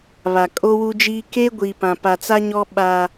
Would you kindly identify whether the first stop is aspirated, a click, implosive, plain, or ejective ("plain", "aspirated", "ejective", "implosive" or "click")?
ejective